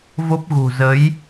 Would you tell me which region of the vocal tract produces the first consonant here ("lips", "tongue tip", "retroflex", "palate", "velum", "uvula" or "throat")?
lips